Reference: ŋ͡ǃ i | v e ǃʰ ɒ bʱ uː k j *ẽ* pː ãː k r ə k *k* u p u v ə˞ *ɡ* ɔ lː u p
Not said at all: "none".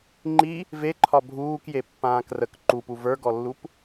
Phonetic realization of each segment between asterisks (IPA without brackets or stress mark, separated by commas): e, ǃ, ɡ